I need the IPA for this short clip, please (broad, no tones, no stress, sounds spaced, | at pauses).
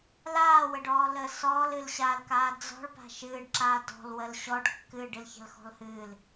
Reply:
l aː w ə ɖ ɔː l əː s ɔː l ɨ l ɕ aː l k aː d͡z ɔ̤ ɭ p a̤ ʃ ɨː ɖ ǁ aː d ɔ̤ l w ə l ɕ ɔ ɖ kː ɨ ɖ ɨ l ç ə̤ l x ɔ̤ l h ɨː l